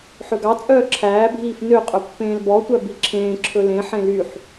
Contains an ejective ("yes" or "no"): yes